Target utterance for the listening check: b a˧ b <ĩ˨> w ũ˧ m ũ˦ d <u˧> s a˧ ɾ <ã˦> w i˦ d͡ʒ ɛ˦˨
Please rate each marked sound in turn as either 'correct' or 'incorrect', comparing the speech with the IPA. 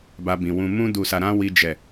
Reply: correct, correct, correct

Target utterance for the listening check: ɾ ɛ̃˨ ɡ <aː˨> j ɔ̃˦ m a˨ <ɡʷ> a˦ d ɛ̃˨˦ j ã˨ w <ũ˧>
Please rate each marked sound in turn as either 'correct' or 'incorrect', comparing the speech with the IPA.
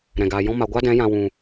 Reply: correct, correct, incorrect: ũ˨

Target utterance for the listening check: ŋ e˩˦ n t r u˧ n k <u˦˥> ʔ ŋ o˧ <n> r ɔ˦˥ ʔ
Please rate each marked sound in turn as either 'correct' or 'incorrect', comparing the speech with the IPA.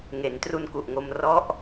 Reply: incorrect: u˨˩, incorrect: m

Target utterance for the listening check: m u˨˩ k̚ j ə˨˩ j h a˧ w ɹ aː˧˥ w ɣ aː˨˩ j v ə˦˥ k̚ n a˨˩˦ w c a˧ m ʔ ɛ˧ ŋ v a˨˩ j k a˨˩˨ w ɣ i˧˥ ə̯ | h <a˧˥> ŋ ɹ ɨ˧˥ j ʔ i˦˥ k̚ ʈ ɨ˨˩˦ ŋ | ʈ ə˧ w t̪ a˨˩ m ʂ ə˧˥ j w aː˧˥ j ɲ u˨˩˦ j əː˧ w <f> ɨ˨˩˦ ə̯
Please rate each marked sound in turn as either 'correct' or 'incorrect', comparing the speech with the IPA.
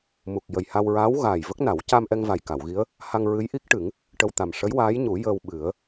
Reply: incorrect: a˧, incorrect: ɓ

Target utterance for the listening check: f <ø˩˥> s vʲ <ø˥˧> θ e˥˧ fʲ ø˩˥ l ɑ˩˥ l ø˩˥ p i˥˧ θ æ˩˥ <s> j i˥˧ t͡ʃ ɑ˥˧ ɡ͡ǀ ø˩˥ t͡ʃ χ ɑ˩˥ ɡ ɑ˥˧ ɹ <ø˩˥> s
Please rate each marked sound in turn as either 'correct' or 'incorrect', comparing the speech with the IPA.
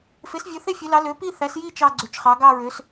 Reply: incorrect: e˩˥, incorrect: ø˩˥, correct, correct

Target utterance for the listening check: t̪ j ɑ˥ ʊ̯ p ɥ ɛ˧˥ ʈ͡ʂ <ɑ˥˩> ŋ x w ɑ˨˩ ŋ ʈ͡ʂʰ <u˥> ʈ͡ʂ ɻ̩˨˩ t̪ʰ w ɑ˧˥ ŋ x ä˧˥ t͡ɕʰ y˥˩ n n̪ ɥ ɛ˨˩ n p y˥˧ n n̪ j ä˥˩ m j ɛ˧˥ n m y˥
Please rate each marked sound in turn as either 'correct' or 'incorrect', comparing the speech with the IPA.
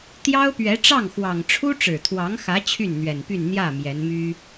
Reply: correct, correct

